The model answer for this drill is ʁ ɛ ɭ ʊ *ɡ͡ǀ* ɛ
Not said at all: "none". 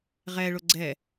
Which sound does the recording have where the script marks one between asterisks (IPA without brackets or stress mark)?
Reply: ɡ͡ǀ